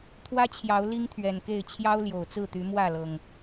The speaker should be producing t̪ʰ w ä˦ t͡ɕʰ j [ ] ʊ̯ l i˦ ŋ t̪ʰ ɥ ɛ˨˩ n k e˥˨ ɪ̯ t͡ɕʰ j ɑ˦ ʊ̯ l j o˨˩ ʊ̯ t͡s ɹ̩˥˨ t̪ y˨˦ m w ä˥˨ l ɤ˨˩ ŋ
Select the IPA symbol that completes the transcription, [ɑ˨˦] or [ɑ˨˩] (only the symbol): ɑ˨˦